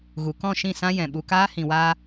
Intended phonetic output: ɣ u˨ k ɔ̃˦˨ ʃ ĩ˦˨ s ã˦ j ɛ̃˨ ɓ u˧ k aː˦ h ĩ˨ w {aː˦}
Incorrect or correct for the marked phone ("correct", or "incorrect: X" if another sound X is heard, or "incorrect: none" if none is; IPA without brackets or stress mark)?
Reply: incorrect: aː˧